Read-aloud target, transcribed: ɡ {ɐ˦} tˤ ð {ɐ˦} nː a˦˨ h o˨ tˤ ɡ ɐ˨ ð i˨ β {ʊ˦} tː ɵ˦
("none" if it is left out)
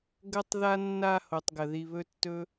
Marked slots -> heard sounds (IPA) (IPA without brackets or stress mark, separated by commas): ɐ˦, a˦, ɵ˦